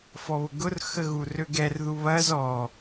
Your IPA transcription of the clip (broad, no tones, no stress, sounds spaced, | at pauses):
f ɔ β ʊ ɡ ʊ r x ə ɣ u r ø ɡ ɛ r ð u β ɐ z ɔ